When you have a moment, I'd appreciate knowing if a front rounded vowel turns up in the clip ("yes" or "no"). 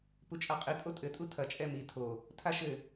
no